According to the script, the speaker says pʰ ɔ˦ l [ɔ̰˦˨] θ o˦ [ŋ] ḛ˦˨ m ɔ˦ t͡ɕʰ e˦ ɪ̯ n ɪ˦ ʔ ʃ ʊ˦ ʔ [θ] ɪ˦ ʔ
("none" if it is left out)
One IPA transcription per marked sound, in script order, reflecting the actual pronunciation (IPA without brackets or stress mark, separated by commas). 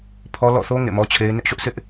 ɔ̰˦˨, ŋ, s